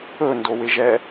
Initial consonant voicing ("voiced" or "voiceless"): voiced